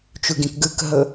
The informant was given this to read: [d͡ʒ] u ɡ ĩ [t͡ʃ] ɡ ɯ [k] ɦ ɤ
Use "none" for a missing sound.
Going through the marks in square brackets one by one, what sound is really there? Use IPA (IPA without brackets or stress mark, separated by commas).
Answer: t͡ʃ, k, k